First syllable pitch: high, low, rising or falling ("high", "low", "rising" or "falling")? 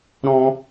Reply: high